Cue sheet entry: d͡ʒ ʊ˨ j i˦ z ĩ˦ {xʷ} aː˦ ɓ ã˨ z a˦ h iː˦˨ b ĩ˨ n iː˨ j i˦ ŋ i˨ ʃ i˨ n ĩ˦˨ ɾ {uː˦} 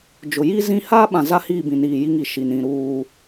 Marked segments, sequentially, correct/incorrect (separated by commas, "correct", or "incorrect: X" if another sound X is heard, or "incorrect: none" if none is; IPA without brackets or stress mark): incorrect: h, correct